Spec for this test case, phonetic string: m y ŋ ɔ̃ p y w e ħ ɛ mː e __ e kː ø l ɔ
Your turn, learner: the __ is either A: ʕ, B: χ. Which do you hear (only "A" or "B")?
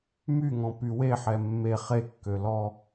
B